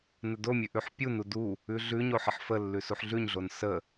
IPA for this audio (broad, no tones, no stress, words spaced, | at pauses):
nədomʲʉʔʉħ pʲu nudu | ʉɮʉɲo ħəħfəlːʉ suħɮʉɲɮon sə